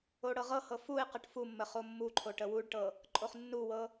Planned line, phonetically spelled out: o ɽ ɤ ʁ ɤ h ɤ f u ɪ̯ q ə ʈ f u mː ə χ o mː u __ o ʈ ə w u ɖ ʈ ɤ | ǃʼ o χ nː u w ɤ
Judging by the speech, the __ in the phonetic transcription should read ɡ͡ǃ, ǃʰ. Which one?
ǃʰ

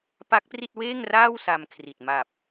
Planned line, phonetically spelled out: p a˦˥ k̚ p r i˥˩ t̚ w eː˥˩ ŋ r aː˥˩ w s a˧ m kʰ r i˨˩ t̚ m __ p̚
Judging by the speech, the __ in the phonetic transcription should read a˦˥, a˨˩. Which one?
a˨˩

